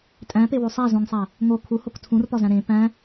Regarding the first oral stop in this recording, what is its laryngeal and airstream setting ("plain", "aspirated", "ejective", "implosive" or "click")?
ejective